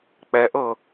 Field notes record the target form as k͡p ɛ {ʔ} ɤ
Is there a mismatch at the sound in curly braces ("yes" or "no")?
no